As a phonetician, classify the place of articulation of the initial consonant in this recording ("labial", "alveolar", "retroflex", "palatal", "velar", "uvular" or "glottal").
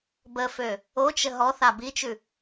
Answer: labial